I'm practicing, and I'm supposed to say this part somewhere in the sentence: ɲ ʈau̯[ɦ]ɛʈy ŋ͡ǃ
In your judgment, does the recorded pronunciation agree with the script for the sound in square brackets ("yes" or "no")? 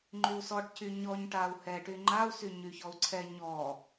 no